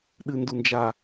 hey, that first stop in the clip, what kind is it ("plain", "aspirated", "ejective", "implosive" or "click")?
implosive